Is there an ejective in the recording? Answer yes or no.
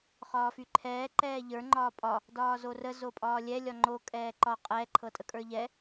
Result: yes